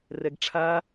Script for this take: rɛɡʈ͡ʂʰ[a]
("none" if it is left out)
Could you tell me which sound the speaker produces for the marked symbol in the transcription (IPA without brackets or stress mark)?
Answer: a